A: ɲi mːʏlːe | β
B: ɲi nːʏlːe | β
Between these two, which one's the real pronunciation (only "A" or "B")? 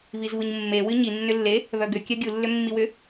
B